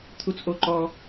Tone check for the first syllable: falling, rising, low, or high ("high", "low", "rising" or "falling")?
high